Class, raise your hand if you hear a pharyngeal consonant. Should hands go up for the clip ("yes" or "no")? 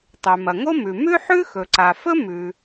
yes